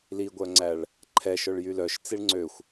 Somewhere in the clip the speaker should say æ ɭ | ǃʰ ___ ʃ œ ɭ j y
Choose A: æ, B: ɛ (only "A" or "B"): B